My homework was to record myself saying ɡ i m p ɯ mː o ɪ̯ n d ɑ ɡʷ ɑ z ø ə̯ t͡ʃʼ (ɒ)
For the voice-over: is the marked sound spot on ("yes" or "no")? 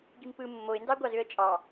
no